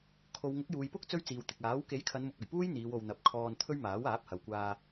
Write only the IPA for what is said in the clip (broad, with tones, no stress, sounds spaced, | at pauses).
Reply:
kʰ o˨ w ŋ ʊ˨˥ k̚ j uː˨ j p ʊ˥ k̚ t͡s ɵ˥ ɥ t͡s iː˨ w t̪ ɪ˨ k̚ aː˨˥ w k e˨˥ j kʰ ɐ˨˧ n m ʊ˨ k̚ ɵ˨˩ ɥ p uː˥ j n̪ iː˨˧ w o˨ w n̪ ɐ˨ p̚ kʰ ɔː˧ n t̪ʰ ɵ˥ ɥ m aː˨˥ w aː˨˥ p̚ h ɐ˨ w kʷ aː˧